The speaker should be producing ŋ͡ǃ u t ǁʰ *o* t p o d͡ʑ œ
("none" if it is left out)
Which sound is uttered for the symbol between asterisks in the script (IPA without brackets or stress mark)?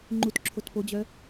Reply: o